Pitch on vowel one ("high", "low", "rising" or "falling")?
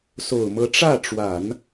low